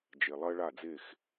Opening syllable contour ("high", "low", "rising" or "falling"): low